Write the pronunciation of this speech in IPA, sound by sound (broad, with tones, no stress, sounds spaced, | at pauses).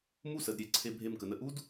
m u˥˧ s ə˩˧ d ɾʲ e˩˧ ǀʰ e˧ bʱ e˧˩ m k ə˩˧ n ə˧˩ ʔ u˥ d